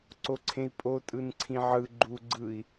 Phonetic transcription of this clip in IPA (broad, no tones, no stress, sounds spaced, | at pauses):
ǀ o ǀʰ ẽ i̯ pʼ o tʼ ɯ n ǀʰ ĩ ʕ ɯ ɡ͡ǃ u ɡ͡ǀ ɯ i̯